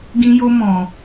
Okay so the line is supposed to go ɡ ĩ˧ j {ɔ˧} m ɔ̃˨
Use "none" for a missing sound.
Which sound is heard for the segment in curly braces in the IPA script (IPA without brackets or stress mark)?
o˧